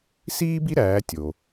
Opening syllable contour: high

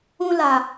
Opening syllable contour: high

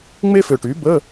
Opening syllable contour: high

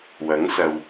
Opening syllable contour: rising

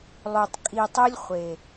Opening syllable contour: low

